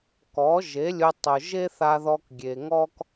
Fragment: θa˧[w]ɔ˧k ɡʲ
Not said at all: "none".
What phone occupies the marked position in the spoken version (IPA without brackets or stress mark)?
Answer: ð